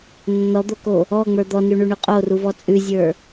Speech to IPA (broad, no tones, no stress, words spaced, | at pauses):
nːɔd̪oko | ɔŋ͡mə˞ d̪ɔnʉɳʉɳʉ qʼoruvɔ t͡sʼʉzʲə˞